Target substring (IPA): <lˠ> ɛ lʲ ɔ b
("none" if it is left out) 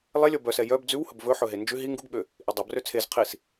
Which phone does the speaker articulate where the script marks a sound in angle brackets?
lˠ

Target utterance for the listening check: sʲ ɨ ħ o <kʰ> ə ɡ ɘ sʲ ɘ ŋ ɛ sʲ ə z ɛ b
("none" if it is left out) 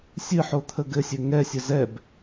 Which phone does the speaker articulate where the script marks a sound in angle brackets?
t̪ʰ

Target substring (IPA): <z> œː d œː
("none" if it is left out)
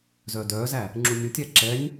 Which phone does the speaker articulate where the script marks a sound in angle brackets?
z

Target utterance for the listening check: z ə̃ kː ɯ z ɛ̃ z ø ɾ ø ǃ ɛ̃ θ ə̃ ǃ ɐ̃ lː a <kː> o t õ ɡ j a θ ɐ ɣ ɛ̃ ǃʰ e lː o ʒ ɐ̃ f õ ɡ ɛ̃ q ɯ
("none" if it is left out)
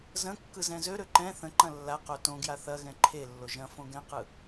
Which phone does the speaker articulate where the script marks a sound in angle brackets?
q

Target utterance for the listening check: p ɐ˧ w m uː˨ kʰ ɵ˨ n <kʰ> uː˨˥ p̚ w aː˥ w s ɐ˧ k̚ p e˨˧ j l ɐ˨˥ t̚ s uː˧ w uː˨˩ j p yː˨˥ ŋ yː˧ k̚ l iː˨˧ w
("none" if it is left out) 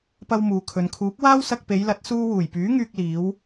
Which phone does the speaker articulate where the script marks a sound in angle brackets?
kʰ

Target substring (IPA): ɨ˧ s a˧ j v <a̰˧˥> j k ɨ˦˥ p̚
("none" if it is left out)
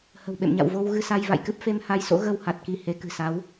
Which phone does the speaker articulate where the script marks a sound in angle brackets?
a̰˧˨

